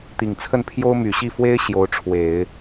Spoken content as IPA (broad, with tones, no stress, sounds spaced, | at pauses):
t̪ i˨˩ ŋ t͡sʰ ə˥˩ n pʰ j o˥ ʊ̯ m y˨˩ ɕ i˥˩ f w e˥ ɪ̯ ɕ j o˧˥ ʊ̯ ʈ͡ʂʰ w e˨˩˦ ɪ̯